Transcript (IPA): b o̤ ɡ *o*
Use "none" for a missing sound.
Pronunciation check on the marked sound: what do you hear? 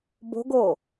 o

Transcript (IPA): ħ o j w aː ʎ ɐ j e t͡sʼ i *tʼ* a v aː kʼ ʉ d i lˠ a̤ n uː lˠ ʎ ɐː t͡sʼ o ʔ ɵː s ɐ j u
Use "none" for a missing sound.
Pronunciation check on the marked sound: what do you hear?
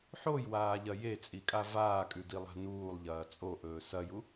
kʼ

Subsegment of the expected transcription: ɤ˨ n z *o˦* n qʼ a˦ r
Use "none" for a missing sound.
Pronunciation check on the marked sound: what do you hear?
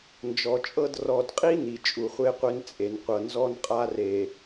ɔ˦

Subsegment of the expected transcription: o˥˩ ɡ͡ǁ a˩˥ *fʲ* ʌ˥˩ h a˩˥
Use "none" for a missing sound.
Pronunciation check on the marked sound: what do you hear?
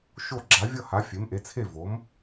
vʲ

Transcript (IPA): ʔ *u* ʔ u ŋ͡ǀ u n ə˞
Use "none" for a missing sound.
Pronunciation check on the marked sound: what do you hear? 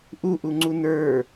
u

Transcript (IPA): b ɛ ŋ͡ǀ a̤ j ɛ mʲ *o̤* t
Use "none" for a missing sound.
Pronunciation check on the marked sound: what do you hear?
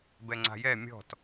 ɔ̤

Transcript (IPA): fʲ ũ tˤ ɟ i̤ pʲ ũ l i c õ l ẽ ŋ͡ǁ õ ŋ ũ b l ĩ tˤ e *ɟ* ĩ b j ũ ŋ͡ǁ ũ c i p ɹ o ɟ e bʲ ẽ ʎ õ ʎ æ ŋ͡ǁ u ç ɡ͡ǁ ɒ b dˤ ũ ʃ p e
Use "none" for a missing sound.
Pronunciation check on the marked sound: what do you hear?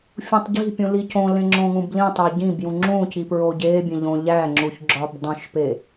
ɟ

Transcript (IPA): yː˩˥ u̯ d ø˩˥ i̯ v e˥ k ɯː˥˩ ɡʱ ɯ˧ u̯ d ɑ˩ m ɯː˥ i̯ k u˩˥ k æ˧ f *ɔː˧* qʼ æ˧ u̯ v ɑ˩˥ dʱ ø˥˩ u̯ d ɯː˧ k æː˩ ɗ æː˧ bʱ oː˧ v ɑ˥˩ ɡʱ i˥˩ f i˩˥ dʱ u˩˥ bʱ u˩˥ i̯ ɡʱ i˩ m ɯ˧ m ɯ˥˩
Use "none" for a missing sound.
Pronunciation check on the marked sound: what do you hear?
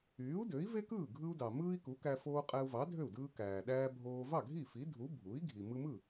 oː˧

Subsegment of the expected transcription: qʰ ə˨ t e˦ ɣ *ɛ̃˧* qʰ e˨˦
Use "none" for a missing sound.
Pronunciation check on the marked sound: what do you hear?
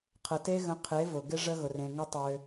ə̃˧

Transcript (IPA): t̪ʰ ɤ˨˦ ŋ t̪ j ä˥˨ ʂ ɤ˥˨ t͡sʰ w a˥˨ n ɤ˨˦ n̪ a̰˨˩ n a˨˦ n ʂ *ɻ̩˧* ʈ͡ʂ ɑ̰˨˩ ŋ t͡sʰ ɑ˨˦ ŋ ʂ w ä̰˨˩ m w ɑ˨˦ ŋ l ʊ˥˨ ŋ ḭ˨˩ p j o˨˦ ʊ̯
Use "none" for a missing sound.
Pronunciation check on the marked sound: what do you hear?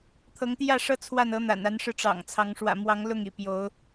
ɻ̩˧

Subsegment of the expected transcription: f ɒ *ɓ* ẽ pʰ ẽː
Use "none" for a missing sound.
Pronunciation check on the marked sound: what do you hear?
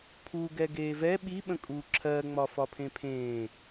pʰ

